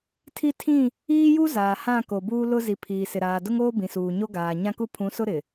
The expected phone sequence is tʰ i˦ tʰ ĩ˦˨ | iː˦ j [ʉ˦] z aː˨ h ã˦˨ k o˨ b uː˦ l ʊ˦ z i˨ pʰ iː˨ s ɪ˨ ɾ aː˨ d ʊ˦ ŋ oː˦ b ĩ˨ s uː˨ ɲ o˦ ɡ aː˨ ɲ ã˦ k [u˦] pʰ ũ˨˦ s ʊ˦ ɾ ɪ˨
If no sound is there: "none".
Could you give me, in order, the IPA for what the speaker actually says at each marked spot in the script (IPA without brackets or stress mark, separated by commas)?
u˦, u˦